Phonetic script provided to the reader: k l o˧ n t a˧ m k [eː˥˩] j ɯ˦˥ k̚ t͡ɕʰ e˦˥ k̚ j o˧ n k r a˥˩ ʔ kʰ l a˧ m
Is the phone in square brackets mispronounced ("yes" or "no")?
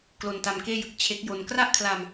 no